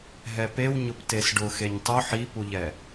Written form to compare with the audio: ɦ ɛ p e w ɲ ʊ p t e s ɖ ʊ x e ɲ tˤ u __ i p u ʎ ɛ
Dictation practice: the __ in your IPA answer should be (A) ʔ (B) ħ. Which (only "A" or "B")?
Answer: B